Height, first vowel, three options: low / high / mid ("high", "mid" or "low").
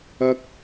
low